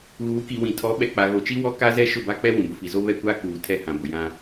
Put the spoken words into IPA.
ɣ uː˨˦ k i˨ w ĩ˨ tʰ ɔ˨˦ ɓ ɛ˨ k͡p a˨ ɣ o˨ t͡ʃ i˦ w ɔ˦ k a˦ z ɛ˦ ʃ ʊ˦˨ b a˦ k͡p ɛ˦ w ũ˨ b ʊ˨ f i˨ z o˦ β ɛ˦ kʷ aː˦ k uː˨ tʰ ɛ˦ h ã˨ b ʊ˨ j ã˦

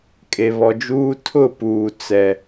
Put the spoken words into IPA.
kʼ e˨ β ɔ˨ d͡ʒ uː˦ tʰ ʊ˦˨ p uː˨ t͡s ɛ˦

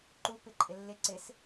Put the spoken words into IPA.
ǃ u p ɪ ǃʼ ɪ lː ɪ ǀ ɪ s

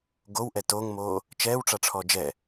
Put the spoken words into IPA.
ɡ o w ʔ ɛ t o ŋ m oː | t͡ʃ ɛː w ʈ͡ʂ a ʈ͡ʂʰ ɔ d͡ʒ ɛ

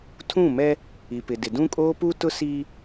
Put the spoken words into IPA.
tʰ ũ˦˨ m ɛ˦ | i˨ p ɪ˨ d ɪ˨ d ũ˦ kʼ oː˦ p u˦ t ʊ˦ s i˦

